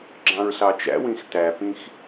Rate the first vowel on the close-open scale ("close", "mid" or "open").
open